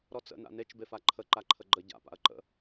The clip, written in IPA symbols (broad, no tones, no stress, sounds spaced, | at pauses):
ɾ ɔ t͡s ə̰ n a̰ n e t͡ʃ b e f a ǃʰ ə ǃ a ǃʰ ə ɡ͡ǃ ə ɟ a̰ p a̰ ɐ̯ ǃ ə̰